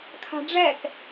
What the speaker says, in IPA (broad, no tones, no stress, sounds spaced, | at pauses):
kʰ a̤ ɖ͡ʐ ɛ k